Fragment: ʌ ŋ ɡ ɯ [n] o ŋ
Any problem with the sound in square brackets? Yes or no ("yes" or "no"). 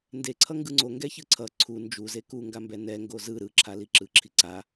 yes